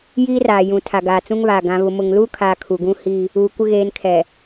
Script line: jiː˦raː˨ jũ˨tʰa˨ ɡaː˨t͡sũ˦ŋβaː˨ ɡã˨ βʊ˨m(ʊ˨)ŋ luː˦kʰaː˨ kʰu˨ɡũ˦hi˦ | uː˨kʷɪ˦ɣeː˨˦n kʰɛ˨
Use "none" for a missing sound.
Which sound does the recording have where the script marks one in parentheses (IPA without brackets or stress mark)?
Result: ʊ˨